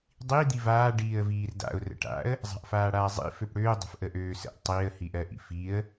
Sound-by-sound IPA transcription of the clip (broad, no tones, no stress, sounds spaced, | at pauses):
dˤ i d̪ i v aː ɖ iː ə̯ v iː r d a̰ ʊ̯ r ə̰ ʈ a̰ ə̯ | zˤ a̤ ʔ f aː ɽ aː zˤ ḭ f ø p ɽ øː dˤ ə̤ f ʔ ə ʔ øː s ə̰ ʔ tˤ i ə̯ h i ʔ ɜ ʔ ḭ f i ə̯